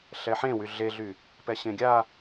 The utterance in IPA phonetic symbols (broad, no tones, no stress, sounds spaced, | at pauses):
ɬ ɛ ħ ẽ w y ɮ e ɮ y | p ɛ ɕ ẽ ɡʲ a